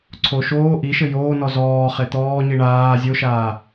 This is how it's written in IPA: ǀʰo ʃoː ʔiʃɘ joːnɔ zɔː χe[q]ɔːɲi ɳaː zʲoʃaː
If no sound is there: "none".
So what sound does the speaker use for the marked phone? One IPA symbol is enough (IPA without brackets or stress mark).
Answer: t̪